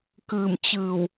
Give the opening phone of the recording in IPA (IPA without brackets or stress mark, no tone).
k